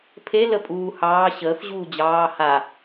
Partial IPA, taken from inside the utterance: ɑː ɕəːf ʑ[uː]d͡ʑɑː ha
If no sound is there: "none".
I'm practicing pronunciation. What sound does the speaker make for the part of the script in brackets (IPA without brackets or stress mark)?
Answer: uː